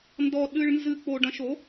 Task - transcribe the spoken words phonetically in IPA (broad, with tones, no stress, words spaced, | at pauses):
ndɔ˧ɗɨ˧ɭnzɨ˧ k͡po˧ɖɐ̃˧ʃo˩˥